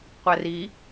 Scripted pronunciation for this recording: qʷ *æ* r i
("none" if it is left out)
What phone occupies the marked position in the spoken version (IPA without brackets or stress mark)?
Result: æ